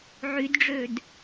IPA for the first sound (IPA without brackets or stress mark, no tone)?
ʕ